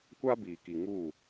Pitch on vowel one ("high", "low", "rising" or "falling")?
high